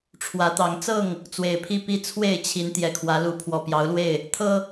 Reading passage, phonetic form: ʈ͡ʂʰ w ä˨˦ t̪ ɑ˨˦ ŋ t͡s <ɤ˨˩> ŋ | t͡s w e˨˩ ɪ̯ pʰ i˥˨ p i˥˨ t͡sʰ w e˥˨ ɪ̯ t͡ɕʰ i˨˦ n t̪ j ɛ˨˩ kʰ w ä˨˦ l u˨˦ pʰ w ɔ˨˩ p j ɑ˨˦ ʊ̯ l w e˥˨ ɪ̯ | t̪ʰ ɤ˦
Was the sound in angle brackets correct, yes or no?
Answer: no